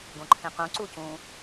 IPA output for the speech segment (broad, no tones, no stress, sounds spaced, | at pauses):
ɡ õ ǃʰ ẽ q ũ ǀ u c ũ